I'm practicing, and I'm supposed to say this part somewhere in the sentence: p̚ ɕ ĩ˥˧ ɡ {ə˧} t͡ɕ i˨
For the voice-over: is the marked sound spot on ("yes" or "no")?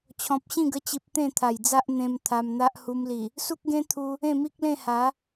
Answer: yes